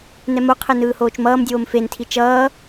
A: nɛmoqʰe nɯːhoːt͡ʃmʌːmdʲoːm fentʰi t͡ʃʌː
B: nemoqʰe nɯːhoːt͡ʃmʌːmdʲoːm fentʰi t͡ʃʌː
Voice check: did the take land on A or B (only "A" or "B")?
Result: A